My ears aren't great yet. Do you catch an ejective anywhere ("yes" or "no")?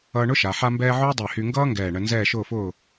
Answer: no